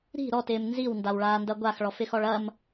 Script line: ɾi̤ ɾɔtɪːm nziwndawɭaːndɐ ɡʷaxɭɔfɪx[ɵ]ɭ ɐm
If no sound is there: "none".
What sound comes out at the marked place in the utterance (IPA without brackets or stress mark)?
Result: ɔ